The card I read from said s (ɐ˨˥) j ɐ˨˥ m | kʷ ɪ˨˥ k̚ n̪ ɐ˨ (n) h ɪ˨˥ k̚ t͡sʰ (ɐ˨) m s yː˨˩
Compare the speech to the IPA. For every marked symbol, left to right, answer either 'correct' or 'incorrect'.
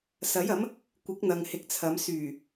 correct, incorrect: ŋ, incorrect: ɐ˨˧

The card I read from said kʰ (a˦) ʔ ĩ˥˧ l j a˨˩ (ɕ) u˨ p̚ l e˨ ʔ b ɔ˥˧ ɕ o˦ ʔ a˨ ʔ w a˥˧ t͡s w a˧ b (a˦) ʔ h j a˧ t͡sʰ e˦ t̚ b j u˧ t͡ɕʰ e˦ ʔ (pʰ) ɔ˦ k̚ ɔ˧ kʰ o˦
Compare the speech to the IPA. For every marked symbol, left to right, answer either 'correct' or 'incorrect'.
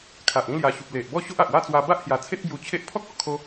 incorrect: a˨, correct, correct, correct

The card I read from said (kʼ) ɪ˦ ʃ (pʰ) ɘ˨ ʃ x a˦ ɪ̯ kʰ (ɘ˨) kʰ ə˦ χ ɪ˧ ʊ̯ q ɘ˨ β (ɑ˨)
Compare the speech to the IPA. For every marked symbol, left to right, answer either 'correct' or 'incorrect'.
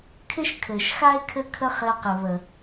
incorrect: kʰ, incorrect: kʰ, incorrect: ɘ˦, incorrect: ə˨

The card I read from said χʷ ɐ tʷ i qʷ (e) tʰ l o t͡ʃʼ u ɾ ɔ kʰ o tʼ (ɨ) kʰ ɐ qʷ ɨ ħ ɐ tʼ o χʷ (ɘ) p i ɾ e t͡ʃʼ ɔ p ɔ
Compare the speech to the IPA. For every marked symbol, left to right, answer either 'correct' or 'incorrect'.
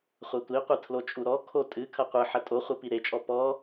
incorrect: ɨ, correct, correct

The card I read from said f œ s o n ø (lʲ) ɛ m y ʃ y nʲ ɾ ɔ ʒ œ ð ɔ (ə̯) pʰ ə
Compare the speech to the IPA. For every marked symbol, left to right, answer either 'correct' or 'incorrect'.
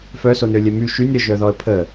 correct, correct

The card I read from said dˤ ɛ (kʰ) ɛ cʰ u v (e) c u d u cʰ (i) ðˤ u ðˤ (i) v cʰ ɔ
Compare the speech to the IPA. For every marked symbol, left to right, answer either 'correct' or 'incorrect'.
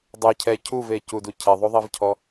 incorrect: cʰ, correct, incorrect: e, correct

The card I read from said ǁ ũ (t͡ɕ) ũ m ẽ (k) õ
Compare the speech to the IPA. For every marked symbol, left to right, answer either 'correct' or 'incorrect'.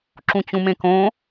correct, correct

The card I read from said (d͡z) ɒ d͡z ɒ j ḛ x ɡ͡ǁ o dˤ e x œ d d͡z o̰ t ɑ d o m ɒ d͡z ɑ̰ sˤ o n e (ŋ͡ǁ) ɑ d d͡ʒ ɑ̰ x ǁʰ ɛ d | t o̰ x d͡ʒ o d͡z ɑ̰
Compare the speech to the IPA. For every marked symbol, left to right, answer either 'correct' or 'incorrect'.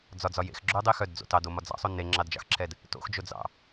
correct, correct

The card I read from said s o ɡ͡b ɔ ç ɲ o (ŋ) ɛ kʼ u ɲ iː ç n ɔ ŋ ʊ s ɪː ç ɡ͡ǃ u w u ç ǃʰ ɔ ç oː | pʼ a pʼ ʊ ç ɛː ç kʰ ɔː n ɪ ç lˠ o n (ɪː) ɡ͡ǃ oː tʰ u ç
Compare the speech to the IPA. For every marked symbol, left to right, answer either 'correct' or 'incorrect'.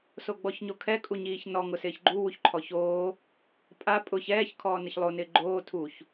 incorrect: kʰ, correct

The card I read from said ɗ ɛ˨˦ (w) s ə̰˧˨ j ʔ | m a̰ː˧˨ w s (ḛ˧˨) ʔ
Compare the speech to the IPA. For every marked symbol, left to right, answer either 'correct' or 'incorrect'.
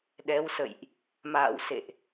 correct, correct

